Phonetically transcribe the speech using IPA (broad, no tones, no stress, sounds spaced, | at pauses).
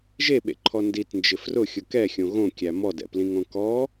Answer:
ʒ e ɓ ḛ ǃʰ ɔ n d i t n d͡ʒ ɪ f r ʊ xʲ ʊ k ɛ xʲ õ ɣ õ kʲ æ m ɔ d ɛ̰ p l ĩ ŋ õ k ɔ